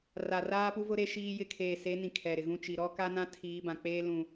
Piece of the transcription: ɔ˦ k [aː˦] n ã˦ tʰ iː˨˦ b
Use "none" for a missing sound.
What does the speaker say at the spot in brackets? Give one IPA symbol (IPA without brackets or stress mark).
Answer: a˦